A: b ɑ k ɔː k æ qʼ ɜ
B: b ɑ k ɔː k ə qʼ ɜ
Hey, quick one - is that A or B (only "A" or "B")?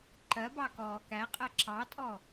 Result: A